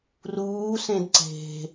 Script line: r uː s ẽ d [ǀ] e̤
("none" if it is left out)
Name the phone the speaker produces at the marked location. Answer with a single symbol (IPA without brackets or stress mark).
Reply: ǀ